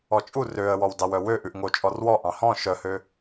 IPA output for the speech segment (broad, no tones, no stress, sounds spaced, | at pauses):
ɔ t͡ʃʼ u r ø ə̯ w ɔ w d ɑ w œ w ø ʔ ʉ ʔ ŋ o t͡ʃʼ ɔ r w ɔ ʔ ɑ̃ h ɔ̃ ʃ œ h ø